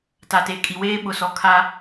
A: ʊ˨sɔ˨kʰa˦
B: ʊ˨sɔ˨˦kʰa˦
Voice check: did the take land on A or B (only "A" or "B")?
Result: A